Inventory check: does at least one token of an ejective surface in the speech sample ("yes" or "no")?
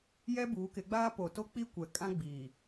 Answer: yes